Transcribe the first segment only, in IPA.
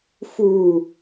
f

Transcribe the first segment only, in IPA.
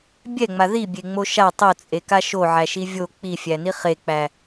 bʲ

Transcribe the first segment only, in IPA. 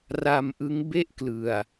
r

